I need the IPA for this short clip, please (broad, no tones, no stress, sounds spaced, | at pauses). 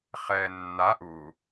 χ ɛː nː a ʔ u